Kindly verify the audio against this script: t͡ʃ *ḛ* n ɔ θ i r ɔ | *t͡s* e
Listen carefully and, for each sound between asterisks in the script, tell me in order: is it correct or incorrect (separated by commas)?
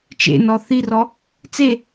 correct, correct